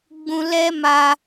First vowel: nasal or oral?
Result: nasal